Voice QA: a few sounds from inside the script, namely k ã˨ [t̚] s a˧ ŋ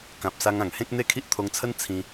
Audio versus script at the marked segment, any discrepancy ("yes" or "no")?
yes